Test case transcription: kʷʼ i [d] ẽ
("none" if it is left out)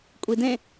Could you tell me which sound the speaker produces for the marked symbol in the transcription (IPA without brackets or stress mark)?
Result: d